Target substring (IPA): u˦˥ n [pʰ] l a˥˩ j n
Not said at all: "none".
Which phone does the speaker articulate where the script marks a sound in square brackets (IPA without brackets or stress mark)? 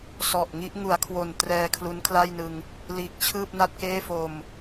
kʰ